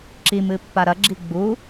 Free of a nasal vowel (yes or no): yes